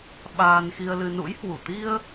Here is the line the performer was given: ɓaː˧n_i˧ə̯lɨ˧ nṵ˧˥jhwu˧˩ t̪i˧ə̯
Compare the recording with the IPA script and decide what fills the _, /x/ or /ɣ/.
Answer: x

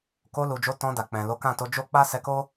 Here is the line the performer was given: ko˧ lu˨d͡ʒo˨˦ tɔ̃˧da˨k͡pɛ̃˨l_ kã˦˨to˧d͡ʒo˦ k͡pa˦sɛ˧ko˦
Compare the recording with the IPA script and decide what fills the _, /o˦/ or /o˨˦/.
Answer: o˨˦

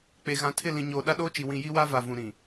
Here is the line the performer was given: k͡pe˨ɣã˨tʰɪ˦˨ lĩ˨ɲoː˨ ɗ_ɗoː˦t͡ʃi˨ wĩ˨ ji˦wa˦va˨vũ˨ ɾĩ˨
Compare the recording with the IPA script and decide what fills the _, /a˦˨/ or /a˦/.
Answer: a˦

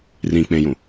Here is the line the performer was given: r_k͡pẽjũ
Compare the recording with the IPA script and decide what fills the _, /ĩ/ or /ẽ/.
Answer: ĩ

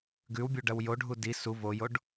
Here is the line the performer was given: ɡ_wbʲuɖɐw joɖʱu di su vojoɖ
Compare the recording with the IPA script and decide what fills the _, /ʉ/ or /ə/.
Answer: ʉ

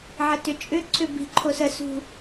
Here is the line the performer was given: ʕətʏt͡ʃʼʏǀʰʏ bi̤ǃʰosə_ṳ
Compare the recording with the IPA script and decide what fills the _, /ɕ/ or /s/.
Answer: s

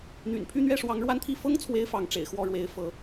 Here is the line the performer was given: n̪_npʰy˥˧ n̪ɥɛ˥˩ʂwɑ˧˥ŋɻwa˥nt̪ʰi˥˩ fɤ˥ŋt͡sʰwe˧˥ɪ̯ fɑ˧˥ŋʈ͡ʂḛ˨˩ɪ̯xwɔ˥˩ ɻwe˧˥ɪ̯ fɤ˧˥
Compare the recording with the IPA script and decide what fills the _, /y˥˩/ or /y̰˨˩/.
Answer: y̰˨˩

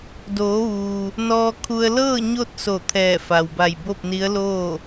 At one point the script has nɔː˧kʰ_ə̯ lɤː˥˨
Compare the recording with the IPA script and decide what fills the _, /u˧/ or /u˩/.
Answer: u˧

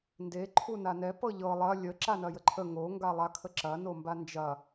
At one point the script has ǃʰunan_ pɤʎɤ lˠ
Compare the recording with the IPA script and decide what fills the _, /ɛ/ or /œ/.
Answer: ɛ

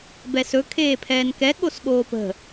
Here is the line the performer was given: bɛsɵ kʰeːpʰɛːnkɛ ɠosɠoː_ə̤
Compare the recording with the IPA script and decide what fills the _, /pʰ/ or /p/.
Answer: p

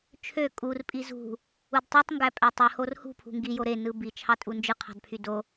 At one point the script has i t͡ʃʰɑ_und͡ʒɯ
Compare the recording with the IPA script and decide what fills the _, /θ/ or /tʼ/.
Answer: tʼ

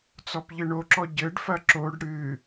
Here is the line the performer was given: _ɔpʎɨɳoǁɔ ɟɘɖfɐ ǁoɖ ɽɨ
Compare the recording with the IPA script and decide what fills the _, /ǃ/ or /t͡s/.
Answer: t͡s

